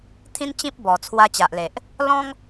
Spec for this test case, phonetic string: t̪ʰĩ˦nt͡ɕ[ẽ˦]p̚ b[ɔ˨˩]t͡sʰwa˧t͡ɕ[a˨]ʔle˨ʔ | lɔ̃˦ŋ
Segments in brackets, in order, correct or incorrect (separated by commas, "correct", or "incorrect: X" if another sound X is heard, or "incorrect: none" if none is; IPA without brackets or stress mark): incorrect: ĩ˦, correct, correct